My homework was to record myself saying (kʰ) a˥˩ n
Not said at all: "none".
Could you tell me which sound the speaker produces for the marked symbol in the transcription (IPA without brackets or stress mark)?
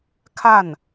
kʰ